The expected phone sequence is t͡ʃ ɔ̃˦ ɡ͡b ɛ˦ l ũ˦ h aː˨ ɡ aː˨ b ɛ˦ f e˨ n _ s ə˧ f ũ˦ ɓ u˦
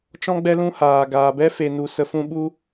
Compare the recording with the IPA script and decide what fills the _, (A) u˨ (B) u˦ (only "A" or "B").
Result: A